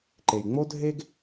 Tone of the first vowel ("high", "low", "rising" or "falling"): low